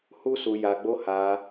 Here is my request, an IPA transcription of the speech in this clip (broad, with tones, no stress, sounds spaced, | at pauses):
h u˦ s u˧ j a˧ ɡ͡b o˦ h a˧